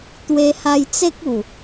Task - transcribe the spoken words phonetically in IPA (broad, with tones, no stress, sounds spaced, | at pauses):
t̪ w e˧ h a˧ j t͡s e˦ k̚ u˨˩